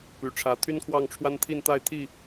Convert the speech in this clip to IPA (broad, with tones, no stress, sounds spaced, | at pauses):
p y˨˩ ʈ͡ʂʰ ä˨˦ t̪ʰ y˦ n kʰ w ɑ˥˨ ŋ ʈ͡ʂʰ w a˦ n t̪ʰ i˥˨ n t̪ a˥˨ ɪ̯ t̪ʰ i˥˨